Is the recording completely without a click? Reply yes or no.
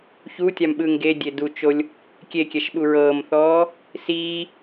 yes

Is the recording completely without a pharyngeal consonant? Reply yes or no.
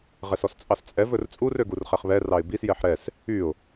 no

